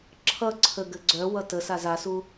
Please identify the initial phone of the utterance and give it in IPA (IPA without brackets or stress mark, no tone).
ǁʰ